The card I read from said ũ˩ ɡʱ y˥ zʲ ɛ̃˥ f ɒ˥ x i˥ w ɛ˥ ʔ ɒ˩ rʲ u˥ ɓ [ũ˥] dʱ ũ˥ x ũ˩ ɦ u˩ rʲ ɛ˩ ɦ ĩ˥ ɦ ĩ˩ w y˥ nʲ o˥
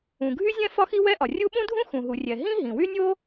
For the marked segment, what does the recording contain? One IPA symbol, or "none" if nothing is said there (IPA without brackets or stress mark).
ũ˥